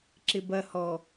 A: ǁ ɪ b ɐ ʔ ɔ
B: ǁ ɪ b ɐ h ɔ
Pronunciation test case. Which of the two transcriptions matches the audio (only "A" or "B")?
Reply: B